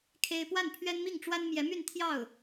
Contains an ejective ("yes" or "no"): no